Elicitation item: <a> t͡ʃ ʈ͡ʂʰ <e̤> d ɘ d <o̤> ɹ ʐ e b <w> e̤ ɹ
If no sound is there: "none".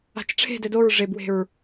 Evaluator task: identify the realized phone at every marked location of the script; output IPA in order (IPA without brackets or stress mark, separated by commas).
a̤, e̤, o, w